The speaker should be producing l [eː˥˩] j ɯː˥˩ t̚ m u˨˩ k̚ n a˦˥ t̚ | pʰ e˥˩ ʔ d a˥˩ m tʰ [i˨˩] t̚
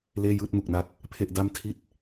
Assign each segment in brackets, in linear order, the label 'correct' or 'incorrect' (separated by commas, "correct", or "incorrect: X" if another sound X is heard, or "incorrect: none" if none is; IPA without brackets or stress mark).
correct, incorrect: i˥˩